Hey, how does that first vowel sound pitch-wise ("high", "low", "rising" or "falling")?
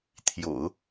low